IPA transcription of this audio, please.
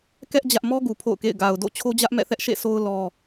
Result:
k ɛ˦ ʔ d͡ʑ ä˦ ʔ m ɔ˦ ɡ u˨ pʰ o̰˦˨ ʊ̯ k ḛ˦˨ ɪ̯ ɡ a˨ ʊ̯ d o̰˦˨ t͡ɕʰ o˦ d͡ʑ ä˦ ʔ m ɛ̰˦˨ θ ɛ˦ ʔ ʃ ḛ˦˨ sʰ o˦ ʊ̯ l ɔ˦

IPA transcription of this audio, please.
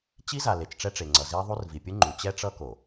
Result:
t͡ɕ i˦ z a˨ l e˨ t͡ʃ ʈ͡ʂ ɛ˦ ʈ͡ʂ e˨ ŋ͡ǀ ʌ˨ z i˦ ðˤ u˦ r v i˨ pʲ ɯ˦ ŋ͡ǃ u˨ t͡ɕ ɛ˦ ʈ͡ʂ ʌ˦ k o˨

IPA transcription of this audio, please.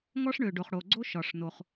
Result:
ŋ ɔ˥ ʂ ɳ ø˩ ɖ o˩ χ ɽ o˩ ɡ͡ǀ o˥ ʃ ɒ˩ ʂ n o˨ χ

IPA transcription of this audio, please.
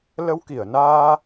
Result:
l ə˧ w k i˧˩ ə̯ n aː˧

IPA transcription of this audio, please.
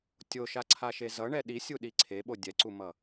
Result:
tʲ o ʃ a ǀʰ a ʃ e z ʌ ɳ ɛ ɗ i sʲ u ɗ i ǀʰ e ɓ o dʲ ɛ ǀ u m ʌ

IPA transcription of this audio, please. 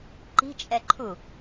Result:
ǃ i̤ t͡ʃʼ ɛ ǃʰ u

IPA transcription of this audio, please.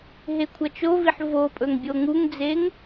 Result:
ɦ e kʷʰ ɐ t͡ʃ o v i ħ v o pʼ ɵ ŋ bʲ o ŋ u ŋ d͡z e ŋ

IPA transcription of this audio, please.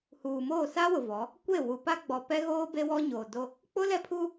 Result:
h uː˨ m oː˦˨ s a˦ w ʊ˨ v ɔ˨˦ | kʷ e˦˨ w u˨ p a˦ ɡ͡b ɔ˨ p ɛ˦ ɣ oː˦ b e˦ w ɔ˦ ɲ oː˨ d o˦ | k͡p ʊ˦ l ɛ˦ pʰ u˦

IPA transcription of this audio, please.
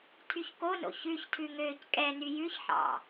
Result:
tʰ y ç k o n o̰ ç ʉ ç tʰ ʉ ŋ øː c kʼ ɛ n y j ʉ ç ħ ɑ̰

